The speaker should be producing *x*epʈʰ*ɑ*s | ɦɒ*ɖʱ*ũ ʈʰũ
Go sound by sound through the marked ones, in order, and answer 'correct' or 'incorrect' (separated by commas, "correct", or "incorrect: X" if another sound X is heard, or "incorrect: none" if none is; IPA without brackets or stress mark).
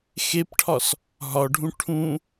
correct, incorrect: ɒ, correct